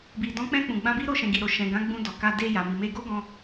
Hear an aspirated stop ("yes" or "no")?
no